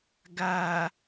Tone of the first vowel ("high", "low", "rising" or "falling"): low